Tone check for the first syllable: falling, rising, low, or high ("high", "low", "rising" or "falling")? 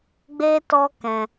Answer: high